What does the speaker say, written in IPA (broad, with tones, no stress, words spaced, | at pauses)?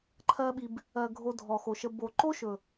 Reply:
ǃʰɜ˧ɓi˨b | ɜ˨ ɡʱo˧dʱɔ˨xo˨ʃə˧ bo˨ǃo˦ʃɵ˨